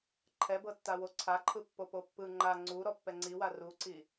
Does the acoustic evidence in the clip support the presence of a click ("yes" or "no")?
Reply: yes